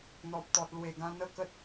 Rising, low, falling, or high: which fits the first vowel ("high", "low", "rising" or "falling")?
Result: low